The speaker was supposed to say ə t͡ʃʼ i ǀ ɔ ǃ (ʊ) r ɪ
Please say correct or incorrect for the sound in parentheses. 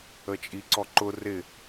correct